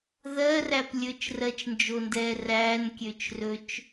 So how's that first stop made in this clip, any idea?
plain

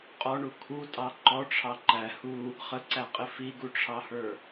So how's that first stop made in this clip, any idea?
ejective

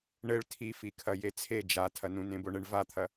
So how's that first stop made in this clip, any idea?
aspirated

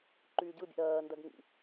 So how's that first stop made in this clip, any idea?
click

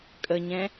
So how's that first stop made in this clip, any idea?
ejective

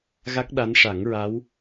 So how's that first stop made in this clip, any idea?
plain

